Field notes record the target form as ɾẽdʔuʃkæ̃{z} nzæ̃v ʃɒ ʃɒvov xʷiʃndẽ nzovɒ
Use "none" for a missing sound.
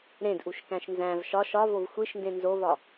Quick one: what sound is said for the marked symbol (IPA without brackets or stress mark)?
ʃ